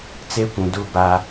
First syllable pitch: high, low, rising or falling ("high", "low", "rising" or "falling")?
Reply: high